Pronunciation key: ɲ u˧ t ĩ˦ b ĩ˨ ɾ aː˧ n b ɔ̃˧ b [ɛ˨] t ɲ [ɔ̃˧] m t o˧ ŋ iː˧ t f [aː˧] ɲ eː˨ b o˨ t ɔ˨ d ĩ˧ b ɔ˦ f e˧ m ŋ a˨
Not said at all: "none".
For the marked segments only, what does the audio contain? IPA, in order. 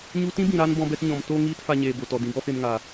ɛ˧, ɔ̃˨, a˧

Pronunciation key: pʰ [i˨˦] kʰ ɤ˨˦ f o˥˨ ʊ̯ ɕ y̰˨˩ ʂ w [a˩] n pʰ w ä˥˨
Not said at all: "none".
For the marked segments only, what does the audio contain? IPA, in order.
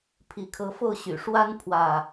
i˨˦, a˦

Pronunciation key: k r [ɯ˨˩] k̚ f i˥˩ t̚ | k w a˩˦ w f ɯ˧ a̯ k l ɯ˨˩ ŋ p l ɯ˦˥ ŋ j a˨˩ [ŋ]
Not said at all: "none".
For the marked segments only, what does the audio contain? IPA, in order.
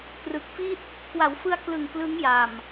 ɯ˨˩, m

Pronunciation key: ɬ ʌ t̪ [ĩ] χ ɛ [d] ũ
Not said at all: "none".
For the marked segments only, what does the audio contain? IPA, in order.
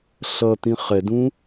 ĩ, d

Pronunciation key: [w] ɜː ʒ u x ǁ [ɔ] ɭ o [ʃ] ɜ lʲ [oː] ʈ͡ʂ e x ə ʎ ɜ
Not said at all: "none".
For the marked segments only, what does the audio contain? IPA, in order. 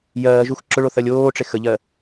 j, ʊ, θ, oː

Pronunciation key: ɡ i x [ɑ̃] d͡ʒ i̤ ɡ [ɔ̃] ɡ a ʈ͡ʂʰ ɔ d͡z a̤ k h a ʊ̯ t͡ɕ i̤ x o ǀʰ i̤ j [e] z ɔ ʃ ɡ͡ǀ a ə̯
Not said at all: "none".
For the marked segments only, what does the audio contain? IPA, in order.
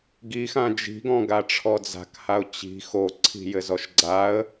ã, ɔ̃, ɘ

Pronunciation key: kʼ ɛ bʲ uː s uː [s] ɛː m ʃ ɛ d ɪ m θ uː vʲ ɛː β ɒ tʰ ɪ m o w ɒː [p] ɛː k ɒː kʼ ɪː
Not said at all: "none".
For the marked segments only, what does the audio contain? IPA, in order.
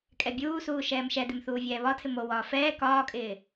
ʃ, f

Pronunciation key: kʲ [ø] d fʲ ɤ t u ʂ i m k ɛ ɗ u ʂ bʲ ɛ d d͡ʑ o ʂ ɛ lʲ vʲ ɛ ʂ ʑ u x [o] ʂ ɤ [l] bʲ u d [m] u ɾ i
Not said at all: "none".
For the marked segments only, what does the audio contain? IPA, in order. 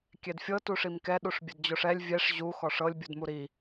ɛ, ɔ, lʲ, m

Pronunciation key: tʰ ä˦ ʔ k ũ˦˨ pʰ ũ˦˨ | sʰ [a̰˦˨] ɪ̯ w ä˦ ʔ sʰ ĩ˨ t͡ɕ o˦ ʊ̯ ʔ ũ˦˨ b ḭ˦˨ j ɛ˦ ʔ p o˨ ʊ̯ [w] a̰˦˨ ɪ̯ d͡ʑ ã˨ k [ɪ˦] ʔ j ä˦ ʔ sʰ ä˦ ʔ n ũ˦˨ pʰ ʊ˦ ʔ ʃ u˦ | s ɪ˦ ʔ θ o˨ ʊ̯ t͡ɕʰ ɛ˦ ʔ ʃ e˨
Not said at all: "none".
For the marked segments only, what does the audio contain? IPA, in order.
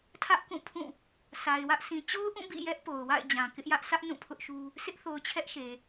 a˨, w, ɪ˦

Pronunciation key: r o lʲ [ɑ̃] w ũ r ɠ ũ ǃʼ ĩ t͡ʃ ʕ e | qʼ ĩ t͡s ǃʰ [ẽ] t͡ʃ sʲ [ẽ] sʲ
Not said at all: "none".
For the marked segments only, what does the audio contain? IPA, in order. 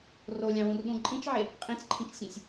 ɑ̃, ĩ, ẽ

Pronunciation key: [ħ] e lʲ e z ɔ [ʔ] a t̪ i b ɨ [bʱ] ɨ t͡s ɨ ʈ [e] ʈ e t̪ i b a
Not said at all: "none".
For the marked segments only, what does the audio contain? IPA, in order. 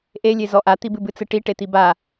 ʔ, ʔ, b, i

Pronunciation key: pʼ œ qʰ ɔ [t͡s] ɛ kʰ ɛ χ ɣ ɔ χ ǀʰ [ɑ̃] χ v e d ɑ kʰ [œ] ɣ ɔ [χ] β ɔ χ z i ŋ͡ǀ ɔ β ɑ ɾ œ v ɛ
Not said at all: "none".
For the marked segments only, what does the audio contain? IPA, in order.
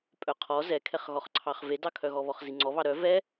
z, ɑ, œ, none

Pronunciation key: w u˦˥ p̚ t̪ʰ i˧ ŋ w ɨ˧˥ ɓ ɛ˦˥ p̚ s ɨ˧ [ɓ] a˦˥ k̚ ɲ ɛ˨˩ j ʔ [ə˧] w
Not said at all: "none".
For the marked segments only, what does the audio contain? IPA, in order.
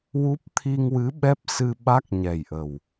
ɓ, ə˨˩

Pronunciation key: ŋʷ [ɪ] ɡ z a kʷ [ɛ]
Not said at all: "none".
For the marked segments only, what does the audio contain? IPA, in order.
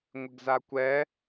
ɪ, ɛ

